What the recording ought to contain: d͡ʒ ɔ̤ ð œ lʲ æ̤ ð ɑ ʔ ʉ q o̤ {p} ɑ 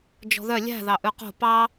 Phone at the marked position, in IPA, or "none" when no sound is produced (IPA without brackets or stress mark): p